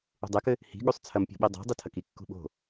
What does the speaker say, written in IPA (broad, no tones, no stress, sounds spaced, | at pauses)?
ṳ dˤ ɛ k ɘ | h i̤ ɠ u sˤ t͡sʰ ɐ m pʲ o̤ ɓ i dˤ o̤ dˤ i tʰ ɐ k i kː ṳ ɓ o̤